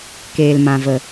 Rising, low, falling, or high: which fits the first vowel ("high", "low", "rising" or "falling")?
low